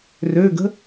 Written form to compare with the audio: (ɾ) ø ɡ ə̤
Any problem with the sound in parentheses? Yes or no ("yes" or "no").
yes